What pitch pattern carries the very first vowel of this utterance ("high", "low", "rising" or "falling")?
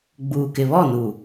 low